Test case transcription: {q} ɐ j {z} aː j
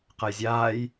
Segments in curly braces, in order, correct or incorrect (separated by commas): correct, incorrect